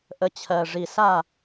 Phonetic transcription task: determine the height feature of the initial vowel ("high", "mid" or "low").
mid